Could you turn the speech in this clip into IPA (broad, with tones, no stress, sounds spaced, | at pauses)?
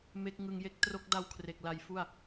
m e˦˥ k̚ ŋ ɯ˧ ŋ j e˥˩ k̚ t r o˦˥ k̚ d a˦˥ w kʰ r e˨˩ k̚ l a˧ j f u˥˩ a̯